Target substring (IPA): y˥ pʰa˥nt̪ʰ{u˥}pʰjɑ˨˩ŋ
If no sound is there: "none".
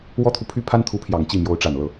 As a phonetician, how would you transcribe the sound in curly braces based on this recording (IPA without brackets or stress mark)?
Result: u˧˥